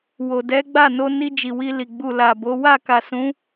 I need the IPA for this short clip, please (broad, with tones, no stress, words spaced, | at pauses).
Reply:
wo˨ dɛ˨˦ɡ͡ba˦˨ no˧ni˧ d͡ʒi˨wi˧li˨ ɡ͡bu˨ la˨bo˨˦ wa˦˨ka˨sũ˨˦